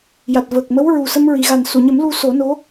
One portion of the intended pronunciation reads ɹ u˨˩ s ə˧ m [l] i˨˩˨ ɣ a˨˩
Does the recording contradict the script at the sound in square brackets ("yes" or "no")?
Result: yes